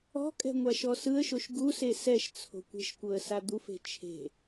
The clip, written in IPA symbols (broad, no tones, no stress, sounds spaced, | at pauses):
ɔ̤ kʼ ɛ̤ ŋʷ a ʃ ɔ s ɯ ə̯ ʃ o ʃ ɡ u s e s ɛ ʃ t͡sʰ o̤ kʷ e̤ ʃ kʷ ɤ ə̯ s a d̪ u f e̤ t͡ʃʰ e̤